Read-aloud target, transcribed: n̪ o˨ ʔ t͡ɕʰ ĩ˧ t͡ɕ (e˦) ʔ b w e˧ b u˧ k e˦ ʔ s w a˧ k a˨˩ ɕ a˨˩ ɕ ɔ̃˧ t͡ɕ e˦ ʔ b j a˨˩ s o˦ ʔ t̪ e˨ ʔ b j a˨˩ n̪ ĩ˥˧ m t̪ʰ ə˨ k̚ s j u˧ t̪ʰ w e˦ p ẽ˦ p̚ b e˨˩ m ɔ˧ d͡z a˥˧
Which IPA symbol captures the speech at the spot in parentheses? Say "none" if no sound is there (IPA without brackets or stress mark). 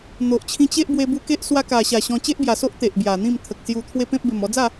e˦